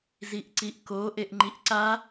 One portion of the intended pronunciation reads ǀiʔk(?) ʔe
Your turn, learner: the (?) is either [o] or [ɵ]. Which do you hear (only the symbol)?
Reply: o